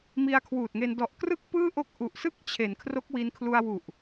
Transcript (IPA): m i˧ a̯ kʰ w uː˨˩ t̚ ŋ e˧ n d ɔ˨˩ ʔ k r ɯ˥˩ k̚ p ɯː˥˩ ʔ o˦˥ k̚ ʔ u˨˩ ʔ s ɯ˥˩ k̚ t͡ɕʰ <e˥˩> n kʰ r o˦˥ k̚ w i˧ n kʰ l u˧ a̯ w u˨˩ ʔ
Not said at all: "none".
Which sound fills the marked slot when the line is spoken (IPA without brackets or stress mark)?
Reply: e˩˦